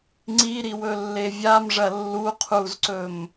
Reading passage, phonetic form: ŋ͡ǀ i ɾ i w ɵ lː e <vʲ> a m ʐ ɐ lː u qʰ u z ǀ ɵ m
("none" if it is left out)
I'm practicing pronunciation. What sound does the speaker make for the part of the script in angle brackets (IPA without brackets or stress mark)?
vʲ